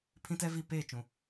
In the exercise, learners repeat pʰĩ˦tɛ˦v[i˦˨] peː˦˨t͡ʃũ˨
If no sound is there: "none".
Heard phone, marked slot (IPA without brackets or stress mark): i˦˨